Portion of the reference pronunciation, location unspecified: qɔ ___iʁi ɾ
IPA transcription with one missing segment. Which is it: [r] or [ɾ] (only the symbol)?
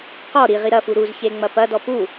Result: ɾ